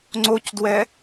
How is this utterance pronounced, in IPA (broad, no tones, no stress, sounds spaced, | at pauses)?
ŋ͡ǀ o c d w ɛ